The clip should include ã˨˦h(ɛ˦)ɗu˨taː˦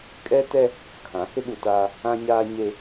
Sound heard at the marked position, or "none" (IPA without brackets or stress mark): ɪ˦